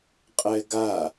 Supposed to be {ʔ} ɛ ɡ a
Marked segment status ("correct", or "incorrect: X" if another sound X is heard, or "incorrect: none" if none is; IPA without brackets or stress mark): incorrect: qʼ